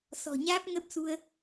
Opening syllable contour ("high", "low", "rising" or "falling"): low